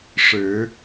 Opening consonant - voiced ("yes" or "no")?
no